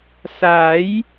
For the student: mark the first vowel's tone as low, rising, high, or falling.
rising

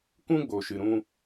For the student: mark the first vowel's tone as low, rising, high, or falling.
high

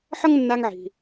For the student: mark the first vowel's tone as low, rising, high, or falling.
high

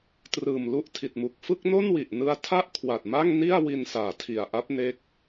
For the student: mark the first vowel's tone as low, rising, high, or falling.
low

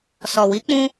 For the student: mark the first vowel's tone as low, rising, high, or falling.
low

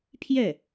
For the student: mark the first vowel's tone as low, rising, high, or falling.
falling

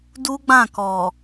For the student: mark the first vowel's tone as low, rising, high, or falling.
high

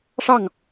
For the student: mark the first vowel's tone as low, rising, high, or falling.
falling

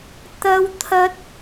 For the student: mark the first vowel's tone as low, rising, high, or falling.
high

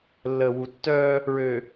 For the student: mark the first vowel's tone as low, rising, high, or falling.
low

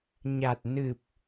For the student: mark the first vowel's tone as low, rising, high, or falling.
low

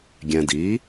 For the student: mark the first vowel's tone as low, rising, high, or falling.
low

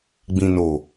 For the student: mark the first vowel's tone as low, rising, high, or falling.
low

